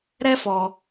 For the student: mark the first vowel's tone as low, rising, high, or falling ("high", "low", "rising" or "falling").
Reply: high